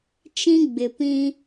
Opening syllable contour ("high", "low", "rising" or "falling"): high